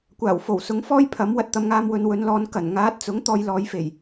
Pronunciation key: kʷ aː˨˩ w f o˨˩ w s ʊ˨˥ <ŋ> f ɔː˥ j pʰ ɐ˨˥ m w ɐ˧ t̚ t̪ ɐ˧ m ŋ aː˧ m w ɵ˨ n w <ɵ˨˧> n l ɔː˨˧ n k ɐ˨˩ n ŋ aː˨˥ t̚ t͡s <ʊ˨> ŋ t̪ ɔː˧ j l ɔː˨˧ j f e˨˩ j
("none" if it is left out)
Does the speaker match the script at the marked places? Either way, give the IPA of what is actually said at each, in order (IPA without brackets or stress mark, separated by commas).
ŋ, ɵ˨˧, ʊ˨˥